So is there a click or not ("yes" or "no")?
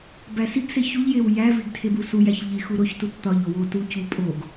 no